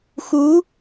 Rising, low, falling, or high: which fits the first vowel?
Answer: rising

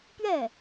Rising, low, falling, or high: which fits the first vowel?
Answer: falling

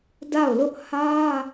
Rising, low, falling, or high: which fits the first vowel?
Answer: falling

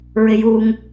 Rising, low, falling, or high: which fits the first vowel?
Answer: high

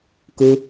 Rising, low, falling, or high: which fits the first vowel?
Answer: high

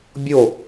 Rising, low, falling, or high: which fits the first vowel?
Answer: falling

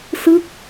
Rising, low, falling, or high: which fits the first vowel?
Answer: falling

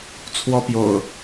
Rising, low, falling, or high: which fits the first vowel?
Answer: high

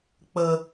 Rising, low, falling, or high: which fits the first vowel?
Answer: low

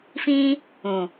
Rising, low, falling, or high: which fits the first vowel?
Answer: high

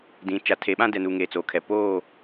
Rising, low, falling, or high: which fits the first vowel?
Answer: rising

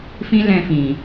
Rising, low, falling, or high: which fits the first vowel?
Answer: high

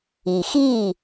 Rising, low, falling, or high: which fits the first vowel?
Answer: low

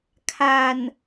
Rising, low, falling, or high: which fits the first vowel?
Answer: low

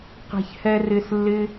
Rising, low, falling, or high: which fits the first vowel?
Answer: low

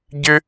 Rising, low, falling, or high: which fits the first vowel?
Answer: high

